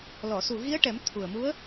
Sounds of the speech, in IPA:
l ɔ˨˩˨ s u˨˩ ɣ i˧˥ ə̯ ʈ ɛ˨˩˦ m t̪ʰ u˨˩ ə̯ m u˧˥ ə̯

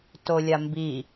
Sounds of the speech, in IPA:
t o lʲ a m b i

